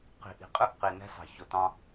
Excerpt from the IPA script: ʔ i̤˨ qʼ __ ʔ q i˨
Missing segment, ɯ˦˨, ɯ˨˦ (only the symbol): ɯ˦˨